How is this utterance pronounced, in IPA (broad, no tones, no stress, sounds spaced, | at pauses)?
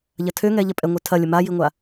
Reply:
ʎ ɐ tʰ ø ŋ ɛ ʎ ɐ pʼ ɛ ŋʷ œ tʰ ɐ lʲ ə m a j i ŋʷ a